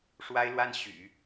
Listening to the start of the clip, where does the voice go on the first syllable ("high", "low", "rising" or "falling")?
high